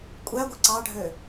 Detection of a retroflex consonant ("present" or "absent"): present